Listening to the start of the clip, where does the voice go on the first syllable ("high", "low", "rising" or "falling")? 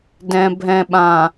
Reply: low